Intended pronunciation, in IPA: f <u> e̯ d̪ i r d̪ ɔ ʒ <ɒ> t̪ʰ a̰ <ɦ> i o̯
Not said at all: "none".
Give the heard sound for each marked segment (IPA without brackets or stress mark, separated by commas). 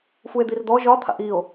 u, ɒ, ʔ